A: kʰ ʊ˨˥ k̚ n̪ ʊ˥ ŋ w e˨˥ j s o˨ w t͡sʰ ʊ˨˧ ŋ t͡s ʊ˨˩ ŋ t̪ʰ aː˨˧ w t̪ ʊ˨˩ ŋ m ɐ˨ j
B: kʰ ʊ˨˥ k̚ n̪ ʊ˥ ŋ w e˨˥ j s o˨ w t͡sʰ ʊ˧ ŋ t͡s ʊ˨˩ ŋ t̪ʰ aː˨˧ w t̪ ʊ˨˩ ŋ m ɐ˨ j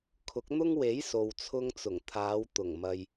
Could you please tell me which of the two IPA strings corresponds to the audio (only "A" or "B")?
B